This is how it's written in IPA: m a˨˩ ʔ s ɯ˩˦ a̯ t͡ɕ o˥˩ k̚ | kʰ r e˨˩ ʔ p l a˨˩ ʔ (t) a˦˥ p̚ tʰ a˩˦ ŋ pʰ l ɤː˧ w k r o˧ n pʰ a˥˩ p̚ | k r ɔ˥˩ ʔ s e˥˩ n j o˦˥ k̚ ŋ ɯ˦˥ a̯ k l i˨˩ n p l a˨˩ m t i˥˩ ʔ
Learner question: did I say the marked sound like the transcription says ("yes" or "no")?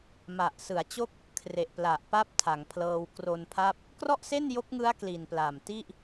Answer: no